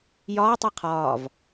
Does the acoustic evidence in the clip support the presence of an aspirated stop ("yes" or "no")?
yes